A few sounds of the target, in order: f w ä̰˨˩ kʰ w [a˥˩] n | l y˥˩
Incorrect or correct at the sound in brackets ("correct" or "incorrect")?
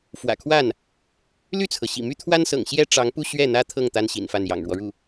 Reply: correct